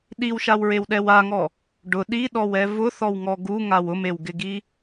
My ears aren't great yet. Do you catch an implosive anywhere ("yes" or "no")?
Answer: yes